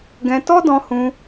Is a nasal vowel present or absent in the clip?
present